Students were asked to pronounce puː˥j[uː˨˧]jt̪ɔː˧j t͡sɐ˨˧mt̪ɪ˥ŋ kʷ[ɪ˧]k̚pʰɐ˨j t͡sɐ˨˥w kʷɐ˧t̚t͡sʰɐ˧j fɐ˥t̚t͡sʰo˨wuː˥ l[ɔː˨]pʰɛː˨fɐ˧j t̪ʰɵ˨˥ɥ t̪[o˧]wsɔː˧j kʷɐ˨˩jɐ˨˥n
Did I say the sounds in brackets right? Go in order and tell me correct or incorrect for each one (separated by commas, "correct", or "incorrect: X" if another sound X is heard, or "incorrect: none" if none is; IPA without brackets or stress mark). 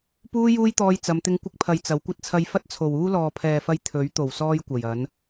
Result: incorrect: uː˥, correct, correct, incorrect: o˨˩